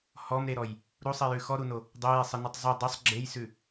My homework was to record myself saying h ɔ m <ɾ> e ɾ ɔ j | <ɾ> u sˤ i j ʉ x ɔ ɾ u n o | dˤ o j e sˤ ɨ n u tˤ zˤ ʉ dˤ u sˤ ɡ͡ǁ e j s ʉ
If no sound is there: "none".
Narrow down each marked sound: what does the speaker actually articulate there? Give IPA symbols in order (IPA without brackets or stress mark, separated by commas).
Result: ɾ, ɾ